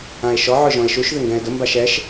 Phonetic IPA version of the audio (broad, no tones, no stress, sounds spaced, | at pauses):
ã e̯ ʃ ɔ ʕ ʊ ʒ ɔ̃ e̯ ʃ u ʃ ð ɪ ŋ ɡ ɛ̃ e̯ d ʊ m b a ʃ ɛ ʃ